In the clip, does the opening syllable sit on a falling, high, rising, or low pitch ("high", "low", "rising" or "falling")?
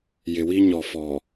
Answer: low